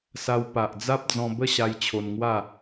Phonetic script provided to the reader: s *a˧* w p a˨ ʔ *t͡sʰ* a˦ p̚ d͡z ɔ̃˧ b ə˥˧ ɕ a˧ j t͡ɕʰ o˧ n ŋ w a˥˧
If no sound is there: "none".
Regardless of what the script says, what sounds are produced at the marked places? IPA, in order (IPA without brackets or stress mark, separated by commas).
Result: a˧, d͡z